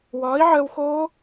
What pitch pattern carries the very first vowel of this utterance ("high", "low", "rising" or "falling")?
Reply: rising